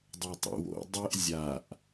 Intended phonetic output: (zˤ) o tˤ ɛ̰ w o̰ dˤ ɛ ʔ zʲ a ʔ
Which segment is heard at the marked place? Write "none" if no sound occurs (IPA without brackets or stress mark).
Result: dˤ